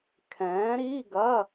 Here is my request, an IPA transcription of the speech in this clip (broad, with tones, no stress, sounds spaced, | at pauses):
kʰ ɛ̃ː˨˥ ɾ i˧˥˧ ɡ ɐ˧˥˧